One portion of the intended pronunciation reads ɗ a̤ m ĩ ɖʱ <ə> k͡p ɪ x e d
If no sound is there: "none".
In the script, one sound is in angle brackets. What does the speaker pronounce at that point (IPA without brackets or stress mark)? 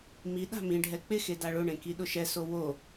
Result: ɛ